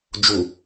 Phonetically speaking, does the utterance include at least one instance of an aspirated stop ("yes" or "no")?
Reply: no